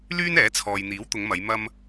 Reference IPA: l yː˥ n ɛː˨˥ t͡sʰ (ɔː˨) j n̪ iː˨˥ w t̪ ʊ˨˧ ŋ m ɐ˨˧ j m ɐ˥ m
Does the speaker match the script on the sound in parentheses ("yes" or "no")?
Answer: yes